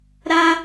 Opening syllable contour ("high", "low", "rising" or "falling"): high